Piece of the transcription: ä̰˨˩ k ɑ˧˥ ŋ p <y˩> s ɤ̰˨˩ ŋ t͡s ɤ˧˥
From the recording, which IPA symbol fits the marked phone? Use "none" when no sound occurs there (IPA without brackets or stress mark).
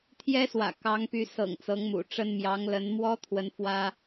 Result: y˧˥